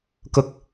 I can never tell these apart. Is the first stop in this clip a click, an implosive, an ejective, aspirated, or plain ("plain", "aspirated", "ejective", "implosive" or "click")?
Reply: plain